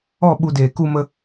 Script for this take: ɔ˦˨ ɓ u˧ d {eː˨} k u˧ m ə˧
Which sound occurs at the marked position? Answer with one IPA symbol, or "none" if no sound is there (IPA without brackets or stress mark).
eː˨